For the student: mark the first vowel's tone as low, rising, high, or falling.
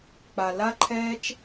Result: low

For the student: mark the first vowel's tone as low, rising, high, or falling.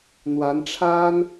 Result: rising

